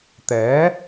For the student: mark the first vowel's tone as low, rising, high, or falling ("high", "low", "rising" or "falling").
rising